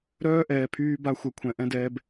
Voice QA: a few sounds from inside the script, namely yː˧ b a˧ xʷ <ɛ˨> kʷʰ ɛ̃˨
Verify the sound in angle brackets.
correct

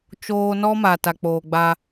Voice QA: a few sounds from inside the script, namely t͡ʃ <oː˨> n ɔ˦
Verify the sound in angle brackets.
incorrect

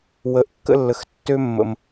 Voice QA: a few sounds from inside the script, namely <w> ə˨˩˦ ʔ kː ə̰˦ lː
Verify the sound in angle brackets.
correct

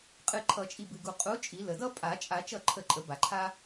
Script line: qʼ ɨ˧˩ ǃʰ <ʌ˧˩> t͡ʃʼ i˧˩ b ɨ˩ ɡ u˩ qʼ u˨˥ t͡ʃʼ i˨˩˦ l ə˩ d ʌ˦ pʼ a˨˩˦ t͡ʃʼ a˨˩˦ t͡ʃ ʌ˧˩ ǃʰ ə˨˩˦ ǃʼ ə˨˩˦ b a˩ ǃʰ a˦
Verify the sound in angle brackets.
incorrect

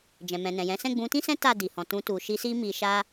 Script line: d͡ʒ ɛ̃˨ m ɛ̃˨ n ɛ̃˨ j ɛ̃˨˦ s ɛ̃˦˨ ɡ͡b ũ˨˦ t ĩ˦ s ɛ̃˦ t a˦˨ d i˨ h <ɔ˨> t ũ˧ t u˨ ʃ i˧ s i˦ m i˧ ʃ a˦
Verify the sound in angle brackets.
incorrect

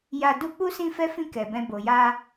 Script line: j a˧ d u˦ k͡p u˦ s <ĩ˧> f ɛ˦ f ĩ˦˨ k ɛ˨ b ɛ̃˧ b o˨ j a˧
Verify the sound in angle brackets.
incorrect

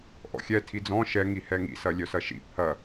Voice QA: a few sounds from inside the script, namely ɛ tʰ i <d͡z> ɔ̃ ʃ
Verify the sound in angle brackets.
correct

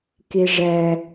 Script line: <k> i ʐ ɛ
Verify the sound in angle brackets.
correct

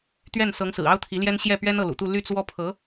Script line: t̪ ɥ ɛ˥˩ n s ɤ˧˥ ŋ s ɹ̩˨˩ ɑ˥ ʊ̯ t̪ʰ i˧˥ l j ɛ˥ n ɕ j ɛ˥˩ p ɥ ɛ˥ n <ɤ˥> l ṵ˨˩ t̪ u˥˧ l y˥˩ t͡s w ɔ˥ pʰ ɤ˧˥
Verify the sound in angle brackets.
incorrect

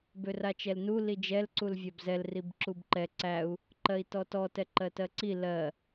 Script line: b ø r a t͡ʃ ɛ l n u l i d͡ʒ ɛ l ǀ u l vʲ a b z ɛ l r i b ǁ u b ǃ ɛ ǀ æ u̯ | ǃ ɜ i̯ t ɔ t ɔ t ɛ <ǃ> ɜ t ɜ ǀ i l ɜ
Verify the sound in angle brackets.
correct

